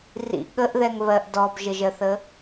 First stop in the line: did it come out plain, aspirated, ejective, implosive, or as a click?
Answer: implosive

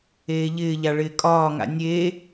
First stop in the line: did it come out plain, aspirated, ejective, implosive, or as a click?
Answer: ejective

